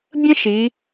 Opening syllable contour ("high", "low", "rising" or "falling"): high